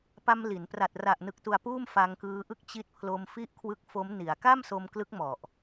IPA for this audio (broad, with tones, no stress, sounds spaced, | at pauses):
p a˧ m l i˩˦ n p r a˨˩ t̚ r a˨˩ ʔ n ɯ˨˩ k̚ t u˨˩ a̯ p uː˥˩ m f a˧ ŋ k ɯː˦˥ ʔ ɯ˥˩ k̚ t͡ɕ i˦˥ t̚ pʰ l o˧ m f i˥˩ ʔ kʰ w ɯ˦˥ k̚ f o˦˥ m n i˩˦ a̯ k a˥˩ m s o˧ m k l ɯ˦˥ k̚ m ɔ˨˩ ʔ